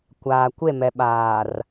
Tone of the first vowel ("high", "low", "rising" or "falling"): low